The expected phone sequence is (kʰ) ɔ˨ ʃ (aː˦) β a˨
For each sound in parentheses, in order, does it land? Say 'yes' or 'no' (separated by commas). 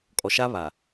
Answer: no, no